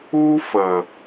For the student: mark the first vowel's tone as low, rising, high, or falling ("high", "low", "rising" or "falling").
high